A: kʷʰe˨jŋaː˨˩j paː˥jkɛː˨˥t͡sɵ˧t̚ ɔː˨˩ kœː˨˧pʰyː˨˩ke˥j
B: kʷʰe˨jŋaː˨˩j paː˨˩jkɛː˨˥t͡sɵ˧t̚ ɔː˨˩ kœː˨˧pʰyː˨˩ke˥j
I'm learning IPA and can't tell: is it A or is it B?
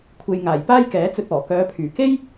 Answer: A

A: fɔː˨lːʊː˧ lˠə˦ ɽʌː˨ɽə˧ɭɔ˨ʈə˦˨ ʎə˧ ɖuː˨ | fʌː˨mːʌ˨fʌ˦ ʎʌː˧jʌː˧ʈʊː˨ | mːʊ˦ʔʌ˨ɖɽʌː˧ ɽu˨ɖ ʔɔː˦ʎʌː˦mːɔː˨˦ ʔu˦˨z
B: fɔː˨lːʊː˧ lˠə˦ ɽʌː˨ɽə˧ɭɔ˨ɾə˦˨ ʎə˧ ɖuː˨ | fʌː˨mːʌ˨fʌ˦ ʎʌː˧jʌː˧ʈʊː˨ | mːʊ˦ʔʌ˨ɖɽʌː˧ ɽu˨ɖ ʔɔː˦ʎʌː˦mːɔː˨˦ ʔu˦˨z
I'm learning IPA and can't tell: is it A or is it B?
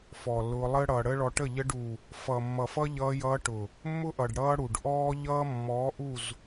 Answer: A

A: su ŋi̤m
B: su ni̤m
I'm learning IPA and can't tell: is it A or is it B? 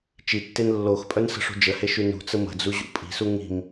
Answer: A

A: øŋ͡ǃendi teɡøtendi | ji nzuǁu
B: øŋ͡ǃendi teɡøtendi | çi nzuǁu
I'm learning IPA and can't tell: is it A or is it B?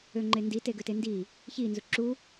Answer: B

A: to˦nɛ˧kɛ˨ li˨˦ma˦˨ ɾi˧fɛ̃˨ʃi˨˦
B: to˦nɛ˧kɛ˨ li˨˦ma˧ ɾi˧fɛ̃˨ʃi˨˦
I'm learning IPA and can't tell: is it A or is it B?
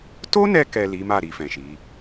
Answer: A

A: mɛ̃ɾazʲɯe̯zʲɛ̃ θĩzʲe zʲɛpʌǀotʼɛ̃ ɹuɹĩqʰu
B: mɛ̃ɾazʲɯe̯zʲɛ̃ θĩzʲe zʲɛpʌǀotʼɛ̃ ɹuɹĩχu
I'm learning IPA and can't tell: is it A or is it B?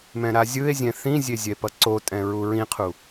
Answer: A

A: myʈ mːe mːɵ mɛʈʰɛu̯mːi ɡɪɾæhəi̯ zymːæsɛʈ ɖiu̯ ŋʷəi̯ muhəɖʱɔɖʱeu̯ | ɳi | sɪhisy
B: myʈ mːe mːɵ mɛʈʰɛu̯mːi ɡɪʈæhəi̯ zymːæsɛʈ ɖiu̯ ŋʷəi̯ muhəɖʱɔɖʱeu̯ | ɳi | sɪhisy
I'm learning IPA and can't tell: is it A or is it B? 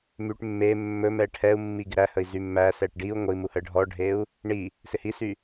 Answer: A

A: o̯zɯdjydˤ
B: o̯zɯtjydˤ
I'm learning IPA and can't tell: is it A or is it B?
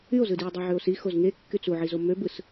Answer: A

